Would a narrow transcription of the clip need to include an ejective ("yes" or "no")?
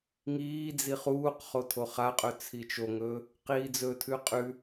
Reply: yes